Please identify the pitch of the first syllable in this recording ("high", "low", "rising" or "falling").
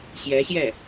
rising